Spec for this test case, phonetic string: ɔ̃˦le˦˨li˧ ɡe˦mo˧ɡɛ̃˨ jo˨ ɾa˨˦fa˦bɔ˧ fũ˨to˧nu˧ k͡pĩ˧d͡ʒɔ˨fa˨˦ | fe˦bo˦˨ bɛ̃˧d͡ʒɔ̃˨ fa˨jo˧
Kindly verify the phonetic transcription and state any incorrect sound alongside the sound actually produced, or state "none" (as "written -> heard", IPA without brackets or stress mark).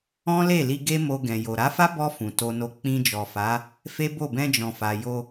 u˧ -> o˧